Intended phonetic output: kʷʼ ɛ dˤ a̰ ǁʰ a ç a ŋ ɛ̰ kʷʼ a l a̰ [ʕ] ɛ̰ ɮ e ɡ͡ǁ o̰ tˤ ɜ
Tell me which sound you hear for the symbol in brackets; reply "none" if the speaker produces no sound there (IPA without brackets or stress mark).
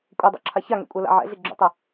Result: ʕ